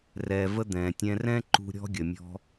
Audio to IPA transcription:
r ɛː˩ v ə˧ d̪ ɛ̃ː˩ tʲ ɛ̃˧ r ɛ̃˥ ǃ ṳ˧ ɾʲ ɔ̤˥ ɡʲ ə˩ mʲ ɔ̤˧

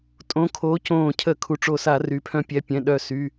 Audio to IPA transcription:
tʼ õ˨˦ kʰ oː˨˦ c õː˧˩ cʰ ə˧˩˧ kʰ u˩ ʈ͡ʂ o˧˩ s a˧˩˧ r yː˩ pʰ œ̃˦˥ pʲ ɛ˩˧˩ pʲ ɛ̃˩˧˩ ɗ œ˧˩ s y˩˧˩

